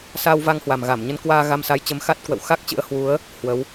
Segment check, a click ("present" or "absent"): absent